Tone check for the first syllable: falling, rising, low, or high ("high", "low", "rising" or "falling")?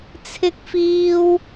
high